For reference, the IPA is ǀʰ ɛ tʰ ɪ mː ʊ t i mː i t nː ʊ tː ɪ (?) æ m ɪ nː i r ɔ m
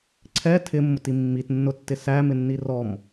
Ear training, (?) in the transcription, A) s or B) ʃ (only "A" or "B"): A